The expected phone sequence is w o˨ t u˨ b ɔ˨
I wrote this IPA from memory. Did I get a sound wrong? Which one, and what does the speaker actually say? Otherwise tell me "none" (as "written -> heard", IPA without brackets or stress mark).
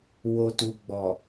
b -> ɡ͡b